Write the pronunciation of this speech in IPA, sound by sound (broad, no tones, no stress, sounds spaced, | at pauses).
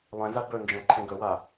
lˠ ɛ̃ z a b ɵ n d͡ʒ ɛ̃ ǃʰ ẽ ɡ ɵ w a